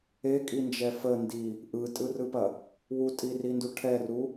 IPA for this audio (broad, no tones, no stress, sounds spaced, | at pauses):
e kʼ i n d͡ʒ ɛ f ə n d i | ʔ ɯ tʼ ɯ r ɯ p ɐ | w u tʼ i r i n d u ʈʰ ɛ r u